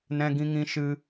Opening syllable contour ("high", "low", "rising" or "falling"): high